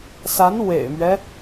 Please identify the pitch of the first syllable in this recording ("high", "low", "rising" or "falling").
rising